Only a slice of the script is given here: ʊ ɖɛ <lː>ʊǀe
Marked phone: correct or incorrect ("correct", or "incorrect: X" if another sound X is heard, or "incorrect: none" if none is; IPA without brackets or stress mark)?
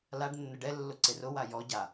correct